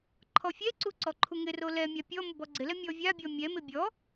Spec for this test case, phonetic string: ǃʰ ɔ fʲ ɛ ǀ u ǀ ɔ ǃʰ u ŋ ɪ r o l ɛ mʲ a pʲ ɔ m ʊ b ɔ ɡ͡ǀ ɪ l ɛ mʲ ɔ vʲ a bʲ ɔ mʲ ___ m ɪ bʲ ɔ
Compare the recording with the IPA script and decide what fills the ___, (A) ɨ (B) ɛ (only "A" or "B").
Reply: B